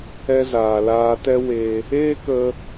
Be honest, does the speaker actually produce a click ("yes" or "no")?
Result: no